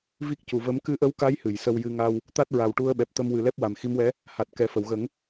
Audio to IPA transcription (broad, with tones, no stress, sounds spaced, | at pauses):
v i˦˥ k̚ c u˨˩ v ə˧˥ m k ɨ˧˥ ʔ ə˧˥ w k a˧˥ j h ɨ˨˩˨ j s ə˧ w j ɨ˧ ŋ a˧ w | t̪ a˦˥ t̚ ɹ a˨˩ w ʈ u˧ ə̯ ɓ ɛ˨˩ p̚ t̪ ə˧ m w ɨ˨˩ l ɛ˦˥ p̚ w a˨˩ m x i˧˥ m w ɛ˧˥ | h a˨˩ t̚ k ɛ˨˩ f ə˨˩˨ w ɣ ə˨˩˦ ŋ